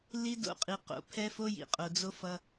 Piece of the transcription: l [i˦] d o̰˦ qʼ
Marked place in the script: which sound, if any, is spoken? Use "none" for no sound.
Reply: i˦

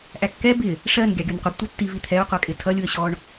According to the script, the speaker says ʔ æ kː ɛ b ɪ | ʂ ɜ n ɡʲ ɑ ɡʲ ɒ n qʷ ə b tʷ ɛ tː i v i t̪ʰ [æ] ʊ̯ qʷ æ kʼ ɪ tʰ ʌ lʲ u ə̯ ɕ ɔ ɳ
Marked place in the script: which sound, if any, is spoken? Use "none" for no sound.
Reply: ɛ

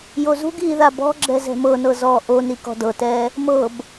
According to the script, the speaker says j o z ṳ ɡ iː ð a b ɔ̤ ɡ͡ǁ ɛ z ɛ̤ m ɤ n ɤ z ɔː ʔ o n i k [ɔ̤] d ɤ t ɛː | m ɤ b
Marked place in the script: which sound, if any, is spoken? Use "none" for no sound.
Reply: ɔ̤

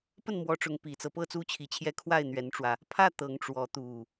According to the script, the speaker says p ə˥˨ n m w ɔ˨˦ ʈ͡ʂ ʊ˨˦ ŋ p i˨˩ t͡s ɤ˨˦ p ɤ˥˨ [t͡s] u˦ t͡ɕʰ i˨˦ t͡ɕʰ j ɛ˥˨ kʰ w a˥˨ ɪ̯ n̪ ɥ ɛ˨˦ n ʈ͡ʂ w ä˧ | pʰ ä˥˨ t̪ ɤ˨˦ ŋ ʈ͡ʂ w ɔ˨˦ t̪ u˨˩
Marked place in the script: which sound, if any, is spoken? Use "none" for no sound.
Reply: t͡s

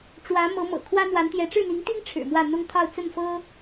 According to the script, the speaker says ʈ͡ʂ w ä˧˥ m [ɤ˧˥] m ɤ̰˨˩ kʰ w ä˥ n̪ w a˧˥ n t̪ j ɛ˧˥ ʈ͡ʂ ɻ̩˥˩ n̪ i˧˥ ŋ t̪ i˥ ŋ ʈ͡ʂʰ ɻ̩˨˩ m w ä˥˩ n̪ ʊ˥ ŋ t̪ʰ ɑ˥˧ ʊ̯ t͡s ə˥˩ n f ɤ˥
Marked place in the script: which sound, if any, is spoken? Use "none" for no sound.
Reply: ɤ˧˥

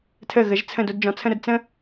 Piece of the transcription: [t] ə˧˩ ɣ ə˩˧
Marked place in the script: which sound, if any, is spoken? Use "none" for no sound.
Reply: tʰ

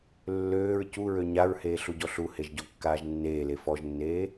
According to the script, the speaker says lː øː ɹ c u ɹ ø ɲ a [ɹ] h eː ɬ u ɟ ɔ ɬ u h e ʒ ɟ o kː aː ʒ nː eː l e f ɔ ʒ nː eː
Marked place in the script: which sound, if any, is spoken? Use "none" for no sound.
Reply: ɹ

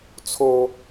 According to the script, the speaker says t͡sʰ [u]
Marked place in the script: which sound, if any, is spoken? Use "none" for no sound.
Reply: o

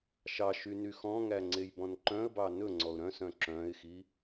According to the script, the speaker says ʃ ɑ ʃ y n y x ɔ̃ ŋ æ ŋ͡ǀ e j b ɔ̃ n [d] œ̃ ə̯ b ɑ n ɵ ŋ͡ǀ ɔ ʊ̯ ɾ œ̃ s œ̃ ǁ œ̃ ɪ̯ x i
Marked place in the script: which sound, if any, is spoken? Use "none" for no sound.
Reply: ǃ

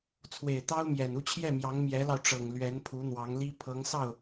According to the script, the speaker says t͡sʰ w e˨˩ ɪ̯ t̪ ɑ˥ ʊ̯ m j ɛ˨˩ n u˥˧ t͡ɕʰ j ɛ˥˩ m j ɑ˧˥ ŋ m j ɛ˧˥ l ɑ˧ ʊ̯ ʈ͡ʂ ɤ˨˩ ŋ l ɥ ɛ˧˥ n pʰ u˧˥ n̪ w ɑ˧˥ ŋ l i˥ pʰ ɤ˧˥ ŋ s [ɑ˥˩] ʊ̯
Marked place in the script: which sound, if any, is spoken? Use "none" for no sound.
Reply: ɑ˥˩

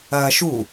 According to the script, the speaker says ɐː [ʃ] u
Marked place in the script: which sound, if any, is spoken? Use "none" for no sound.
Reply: ʃ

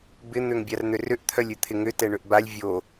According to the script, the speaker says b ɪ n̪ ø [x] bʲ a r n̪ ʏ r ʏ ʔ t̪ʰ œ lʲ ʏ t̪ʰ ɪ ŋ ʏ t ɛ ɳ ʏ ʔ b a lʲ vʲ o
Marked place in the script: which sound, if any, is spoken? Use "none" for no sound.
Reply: ŋ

